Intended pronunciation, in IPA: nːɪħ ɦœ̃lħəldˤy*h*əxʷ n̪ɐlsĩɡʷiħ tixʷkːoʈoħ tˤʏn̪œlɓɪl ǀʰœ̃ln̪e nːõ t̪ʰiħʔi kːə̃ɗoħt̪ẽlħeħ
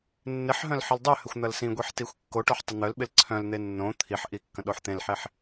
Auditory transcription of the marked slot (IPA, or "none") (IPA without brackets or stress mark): h